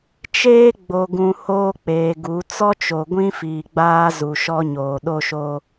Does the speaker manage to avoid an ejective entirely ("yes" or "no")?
yes